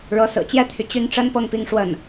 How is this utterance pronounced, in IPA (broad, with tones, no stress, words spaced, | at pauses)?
ɻɤ˧˥sɹ̩˨˩t͡ɕjɛ˥t̪ʰy˨ t͡ɕy˥˩n ʈ͡ʂə˥n pɤ˥˩ŋpi˥ŋʂwə˥˩n